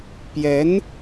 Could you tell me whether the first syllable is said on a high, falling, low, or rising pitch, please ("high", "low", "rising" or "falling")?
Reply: rising